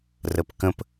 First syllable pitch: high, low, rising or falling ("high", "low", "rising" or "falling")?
low